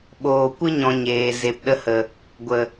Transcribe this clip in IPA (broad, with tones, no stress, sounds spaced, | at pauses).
ɓ oː˨ kʷ ɨ˦ ɲ ɔ̃˨ ɲ eː˨ z e˨ p ɗ ə˧ h ə˨ | ɡʷ ə˨